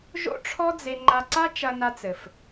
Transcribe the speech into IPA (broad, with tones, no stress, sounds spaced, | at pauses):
ʒ o̰˥ ʈ͡ʂʰ ɔ˥ d͡z e˧ ŋ͡ǃ a˧ ǀ a˥ t͡ʃ ɐ˧ n a˧ t͡s ɘ˩ f